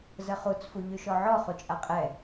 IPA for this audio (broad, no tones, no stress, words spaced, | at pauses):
zəχut͡s fuʎyʃɔʕɔ χut͡ʃʼaqʼɛ